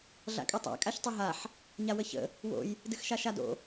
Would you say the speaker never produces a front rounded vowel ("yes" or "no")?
yes